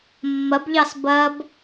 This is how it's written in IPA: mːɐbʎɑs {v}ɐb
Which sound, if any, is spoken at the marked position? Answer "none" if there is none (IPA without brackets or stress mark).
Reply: b